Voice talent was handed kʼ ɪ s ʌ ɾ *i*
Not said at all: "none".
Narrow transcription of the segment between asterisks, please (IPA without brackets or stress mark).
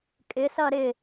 ɪ